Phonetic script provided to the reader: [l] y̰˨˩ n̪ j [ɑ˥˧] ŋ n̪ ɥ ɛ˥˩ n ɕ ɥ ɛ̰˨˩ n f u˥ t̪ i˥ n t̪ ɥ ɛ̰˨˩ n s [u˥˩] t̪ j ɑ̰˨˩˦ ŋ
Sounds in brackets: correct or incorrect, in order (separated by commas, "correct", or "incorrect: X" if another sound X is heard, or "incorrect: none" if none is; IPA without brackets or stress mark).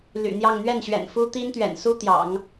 correct, correct, incorrect: u˥